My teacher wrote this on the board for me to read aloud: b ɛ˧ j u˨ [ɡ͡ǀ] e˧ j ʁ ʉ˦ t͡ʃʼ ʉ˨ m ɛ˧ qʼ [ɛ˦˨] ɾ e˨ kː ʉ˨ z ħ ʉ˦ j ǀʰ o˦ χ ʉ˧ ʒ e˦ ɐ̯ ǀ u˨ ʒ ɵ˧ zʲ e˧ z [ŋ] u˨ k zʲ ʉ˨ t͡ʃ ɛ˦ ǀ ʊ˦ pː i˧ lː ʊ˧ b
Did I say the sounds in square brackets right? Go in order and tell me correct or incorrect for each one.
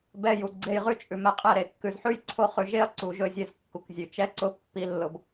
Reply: correct, correct, incorrect: kː

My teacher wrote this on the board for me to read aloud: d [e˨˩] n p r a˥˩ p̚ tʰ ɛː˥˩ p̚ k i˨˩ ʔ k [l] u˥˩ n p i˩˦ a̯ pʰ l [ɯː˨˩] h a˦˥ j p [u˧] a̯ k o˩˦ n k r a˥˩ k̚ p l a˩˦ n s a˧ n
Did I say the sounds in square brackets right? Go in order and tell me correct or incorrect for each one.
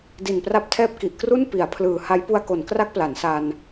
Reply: incorrect: i˨˩, incorrect: r, correct, correct

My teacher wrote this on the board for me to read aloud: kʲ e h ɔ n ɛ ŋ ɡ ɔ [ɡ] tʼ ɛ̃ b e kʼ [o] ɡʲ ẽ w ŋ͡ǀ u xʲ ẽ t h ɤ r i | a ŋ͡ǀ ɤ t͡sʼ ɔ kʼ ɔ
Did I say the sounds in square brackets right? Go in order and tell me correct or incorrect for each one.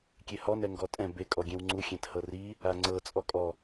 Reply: incorrect: none, incorrect: ɔ

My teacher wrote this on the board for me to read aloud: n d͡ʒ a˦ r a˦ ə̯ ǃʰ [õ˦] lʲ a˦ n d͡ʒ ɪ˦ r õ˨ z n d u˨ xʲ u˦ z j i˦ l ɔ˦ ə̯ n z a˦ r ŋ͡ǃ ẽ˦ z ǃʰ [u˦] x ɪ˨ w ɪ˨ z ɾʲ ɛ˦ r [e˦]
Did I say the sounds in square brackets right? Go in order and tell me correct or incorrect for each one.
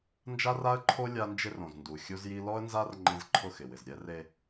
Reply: incorrect: o˦, incorrect: ʊ˦, correct

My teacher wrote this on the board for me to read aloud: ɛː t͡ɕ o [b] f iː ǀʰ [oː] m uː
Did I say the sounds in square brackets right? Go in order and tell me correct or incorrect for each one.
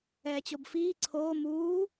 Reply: correct, correct

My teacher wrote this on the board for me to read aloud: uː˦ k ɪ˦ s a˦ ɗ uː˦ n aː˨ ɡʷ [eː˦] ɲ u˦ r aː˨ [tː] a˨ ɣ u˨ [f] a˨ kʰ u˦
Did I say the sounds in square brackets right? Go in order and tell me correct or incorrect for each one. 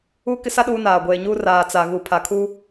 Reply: incorrect: eː˨, incorrect: t͡s, incorrect: pʰ

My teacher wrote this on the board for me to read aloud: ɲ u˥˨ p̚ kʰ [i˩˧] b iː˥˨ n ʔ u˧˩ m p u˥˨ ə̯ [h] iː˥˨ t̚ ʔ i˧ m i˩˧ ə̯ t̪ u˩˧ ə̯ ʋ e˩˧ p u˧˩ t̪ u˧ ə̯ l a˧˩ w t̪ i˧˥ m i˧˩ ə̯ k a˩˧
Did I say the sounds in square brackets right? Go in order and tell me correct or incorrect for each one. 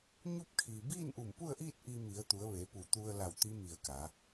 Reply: incorrect: i˩, incorrect: ʔ

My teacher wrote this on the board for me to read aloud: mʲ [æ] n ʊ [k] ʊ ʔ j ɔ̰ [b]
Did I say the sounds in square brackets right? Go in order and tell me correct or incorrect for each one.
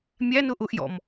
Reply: correct, incorrect: ʔ, incorrect: m

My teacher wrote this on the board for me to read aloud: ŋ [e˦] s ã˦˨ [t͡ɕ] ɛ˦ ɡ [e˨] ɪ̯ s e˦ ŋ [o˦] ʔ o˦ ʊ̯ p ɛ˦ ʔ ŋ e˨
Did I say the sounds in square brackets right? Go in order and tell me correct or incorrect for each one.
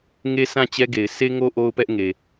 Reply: correct, correct, correct, correct

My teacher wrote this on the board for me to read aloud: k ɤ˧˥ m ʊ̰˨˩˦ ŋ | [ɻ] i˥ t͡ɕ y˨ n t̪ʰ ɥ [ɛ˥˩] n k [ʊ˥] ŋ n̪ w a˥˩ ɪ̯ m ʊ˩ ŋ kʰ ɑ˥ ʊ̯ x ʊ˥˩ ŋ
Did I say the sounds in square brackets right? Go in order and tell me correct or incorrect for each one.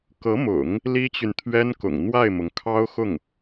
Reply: incorrect: l, incorrect: ɛ˥, incorrect: ʊ̰˨˩

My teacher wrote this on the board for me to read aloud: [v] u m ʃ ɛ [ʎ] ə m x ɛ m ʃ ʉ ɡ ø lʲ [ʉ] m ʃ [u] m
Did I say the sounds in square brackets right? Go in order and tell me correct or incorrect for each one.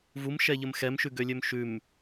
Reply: correct, correct, incorrect: ø, incorrect: ʉ

